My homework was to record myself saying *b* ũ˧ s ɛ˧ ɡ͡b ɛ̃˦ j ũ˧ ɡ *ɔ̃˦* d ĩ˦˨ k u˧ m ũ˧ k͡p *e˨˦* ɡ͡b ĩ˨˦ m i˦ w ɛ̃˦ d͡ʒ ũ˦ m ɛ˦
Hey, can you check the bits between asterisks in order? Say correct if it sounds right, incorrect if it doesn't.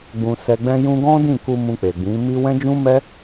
incorrect: ɡ͡b, correct, incorrect: e˨

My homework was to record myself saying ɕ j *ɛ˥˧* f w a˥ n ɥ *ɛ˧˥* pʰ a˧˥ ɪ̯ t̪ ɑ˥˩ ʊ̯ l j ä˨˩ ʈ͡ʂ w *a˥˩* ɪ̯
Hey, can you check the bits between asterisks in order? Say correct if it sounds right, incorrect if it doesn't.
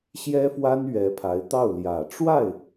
incorrect: ɛ˥, correct, correct

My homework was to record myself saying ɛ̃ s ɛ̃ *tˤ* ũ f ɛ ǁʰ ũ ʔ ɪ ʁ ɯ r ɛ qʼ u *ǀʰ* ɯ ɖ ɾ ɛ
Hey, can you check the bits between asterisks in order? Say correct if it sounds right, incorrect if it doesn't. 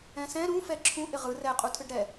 incorrect: ɾ, incorrect: tʰ

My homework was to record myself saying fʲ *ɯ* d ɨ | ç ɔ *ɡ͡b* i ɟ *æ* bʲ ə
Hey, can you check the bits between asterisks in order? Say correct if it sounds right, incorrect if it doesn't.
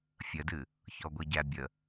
incorrect: ə, incorrect: ɡʷ, correct

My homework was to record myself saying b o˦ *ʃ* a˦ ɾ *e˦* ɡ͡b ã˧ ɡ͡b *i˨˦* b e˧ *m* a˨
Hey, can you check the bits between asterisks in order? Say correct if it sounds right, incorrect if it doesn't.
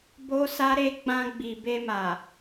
incorrect: s, correct, incorrect: i˨, correct

